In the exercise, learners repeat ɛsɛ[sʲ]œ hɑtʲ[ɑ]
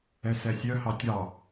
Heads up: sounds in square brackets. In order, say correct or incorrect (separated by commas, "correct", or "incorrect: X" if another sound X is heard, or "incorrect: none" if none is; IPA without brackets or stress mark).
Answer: correct, correct